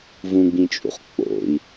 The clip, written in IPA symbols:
v ũ ɡ͡b ĩ t͡ʃʼ ṵ χ k͡p o̰ i̯

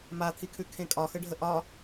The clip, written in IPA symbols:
m a t̪ʰ i kʰ ʉ kʰ ẽ kʼ ɒ x ə ɖʱ ə ʔ ɒ

